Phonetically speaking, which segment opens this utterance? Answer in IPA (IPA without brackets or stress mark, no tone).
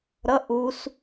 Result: ɾ